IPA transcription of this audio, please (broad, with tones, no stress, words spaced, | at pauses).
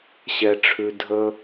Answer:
ɕɛ˦ʈ͡ʂʰʉ˦ dʱə˥